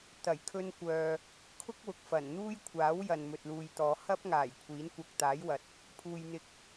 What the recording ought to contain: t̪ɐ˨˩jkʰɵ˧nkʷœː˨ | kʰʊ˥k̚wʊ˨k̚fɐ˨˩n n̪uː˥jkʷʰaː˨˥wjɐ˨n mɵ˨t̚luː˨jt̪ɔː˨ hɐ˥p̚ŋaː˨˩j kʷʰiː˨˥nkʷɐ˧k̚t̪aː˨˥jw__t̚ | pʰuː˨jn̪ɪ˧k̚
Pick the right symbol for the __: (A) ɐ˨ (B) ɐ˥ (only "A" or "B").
A